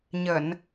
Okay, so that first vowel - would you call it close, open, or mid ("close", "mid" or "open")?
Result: mid